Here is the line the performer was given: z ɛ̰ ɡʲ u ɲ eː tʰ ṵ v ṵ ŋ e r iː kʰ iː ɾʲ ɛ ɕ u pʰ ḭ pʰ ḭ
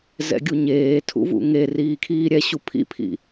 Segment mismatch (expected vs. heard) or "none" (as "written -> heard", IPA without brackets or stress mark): none